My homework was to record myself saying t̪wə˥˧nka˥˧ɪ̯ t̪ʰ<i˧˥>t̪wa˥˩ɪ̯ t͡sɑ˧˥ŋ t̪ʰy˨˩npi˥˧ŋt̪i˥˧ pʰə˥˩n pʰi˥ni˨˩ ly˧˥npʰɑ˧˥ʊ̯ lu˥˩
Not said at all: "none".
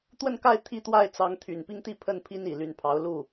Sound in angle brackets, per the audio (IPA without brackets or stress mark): i˥˧